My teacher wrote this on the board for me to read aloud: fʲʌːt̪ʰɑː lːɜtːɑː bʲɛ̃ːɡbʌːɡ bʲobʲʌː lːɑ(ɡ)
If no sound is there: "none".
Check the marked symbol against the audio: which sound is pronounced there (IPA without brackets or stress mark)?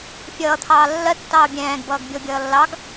ɡ